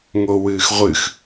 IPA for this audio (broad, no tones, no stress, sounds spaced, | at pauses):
ŋ o w ɨː x ʁʷ ɨ x